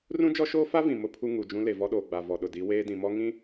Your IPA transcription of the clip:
r ũ˦ d͡ʒ ɔ˦ ʃ oː˦ f a˦ v ĩ˨ m ʊ˦ pʰ u˦ ŋ u˨ d͡ʒ ũ˦ l e˨ v ɔ˦ ɗ oː˨ ɡ͡b a˨ v ɔ˨ ɗ ʊ˨ d i˨˦ w eː˦ d ĩ˨ m ɔ˦ ŋ ĩ˦

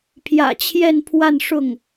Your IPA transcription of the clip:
pʰ j ä̰˨˩ t͡ɕʰ j ɛ˥˧ n pʰ w a˥˧ n ʂ ʊ˥˩ ŋ

